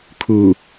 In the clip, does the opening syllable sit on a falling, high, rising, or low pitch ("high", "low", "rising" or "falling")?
low